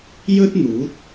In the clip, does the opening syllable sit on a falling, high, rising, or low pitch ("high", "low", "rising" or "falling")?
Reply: high